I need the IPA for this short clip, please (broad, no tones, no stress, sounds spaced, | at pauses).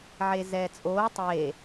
ʕ e z ɛː t͡sʼ oː tˤ eː